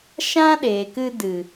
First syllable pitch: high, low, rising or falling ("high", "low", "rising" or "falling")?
high